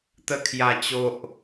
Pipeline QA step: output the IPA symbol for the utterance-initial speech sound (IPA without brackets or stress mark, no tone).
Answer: t̪